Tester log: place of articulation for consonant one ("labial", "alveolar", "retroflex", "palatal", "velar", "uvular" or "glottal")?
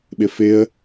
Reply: labial